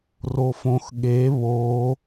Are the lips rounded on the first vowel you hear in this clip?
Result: yes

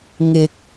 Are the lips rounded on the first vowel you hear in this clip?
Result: no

